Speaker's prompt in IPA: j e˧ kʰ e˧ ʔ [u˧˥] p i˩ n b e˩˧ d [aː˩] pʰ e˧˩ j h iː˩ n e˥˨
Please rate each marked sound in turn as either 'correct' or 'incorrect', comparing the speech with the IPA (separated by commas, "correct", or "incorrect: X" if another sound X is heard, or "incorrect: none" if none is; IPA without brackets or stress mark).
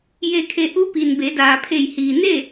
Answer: correct, correct